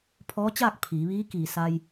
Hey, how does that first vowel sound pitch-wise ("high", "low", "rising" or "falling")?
rising